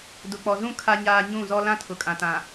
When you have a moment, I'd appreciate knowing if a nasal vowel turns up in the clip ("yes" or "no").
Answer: yes